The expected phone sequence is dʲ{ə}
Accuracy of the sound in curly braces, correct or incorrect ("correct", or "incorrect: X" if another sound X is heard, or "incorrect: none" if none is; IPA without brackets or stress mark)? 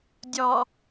incorrect: ɔ